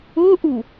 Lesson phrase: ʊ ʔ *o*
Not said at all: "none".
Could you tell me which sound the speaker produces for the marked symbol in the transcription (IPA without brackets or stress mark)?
u